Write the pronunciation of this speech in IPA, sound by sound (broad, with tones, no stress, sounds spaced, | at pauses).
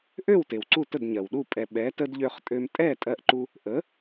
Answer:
ʔ ø˥˩ w t e˩ w ǀ u˥˩ t ə˥˩ d ɲ ɜ˩ w ɗ u˥˩ pʼ ɛ˩ ɓ ɛ˩˥ t ə˧ d ʎ ø˧ χ tʼ ø˧ m tʼ ɛ˥˩ tʼ ɜ˧ ʔ ǃ u˧ | ʔ ə˩˥